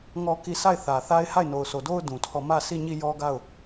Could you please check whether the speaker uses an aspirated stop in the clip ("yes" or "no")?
yes